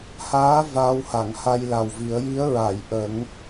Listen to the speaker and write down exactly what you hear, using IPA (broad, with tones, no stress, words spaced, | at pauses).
haː˧˥ vaː˧wha˨˩˨ŋha˧j la˨˩wvi˨˩˦ə̯ ji˧˥ə̯ɹa˨˩˨jʔə˨˩˦ŋ